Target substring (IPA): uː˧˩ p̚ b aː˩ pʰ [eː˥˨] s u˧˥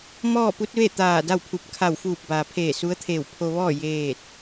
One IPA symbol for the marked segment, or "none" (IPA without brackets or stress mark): eː˧˩